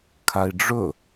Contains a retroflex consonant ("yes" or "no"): yes